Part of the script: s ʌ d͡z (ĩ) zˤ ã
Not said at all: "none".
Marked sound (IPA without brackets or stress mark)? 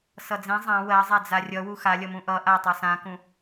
ĩ